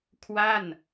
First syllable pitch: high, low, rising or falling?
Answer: falling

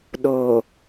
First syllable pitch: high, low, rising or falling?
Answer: low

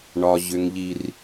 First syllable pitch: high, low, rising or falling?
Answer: low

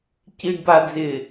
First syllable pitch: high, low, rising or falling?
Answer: low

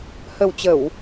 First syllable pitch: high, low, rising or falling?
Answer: low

